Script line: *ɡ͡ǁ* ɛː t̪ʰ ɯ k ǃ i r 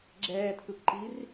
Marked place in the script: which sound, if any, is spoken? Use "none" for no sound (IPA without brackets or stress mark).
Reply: ɡ͡ǁ